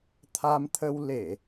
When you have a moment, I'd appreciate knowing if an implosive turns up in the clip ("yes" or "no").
no